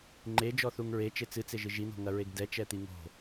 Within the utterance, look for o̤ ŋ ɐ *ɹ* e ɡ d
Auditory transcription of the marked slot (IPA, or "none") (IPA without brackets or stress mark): ɹ